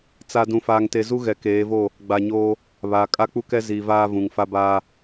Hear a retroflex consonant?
no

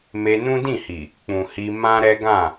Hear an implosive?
no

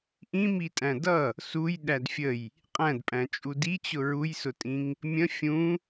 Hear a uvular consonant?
yes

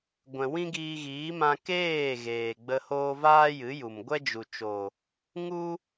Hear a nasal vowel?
yes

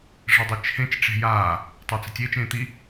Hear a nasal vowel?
yes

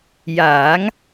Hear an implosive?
no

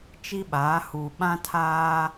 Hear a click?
no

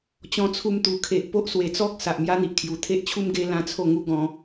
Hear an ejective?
no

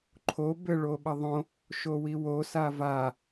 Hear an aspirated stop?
yes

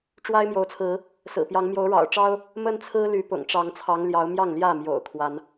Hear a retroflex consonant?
yes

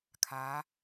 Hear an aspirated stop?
yes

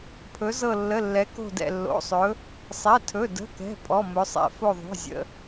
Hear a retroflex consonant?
no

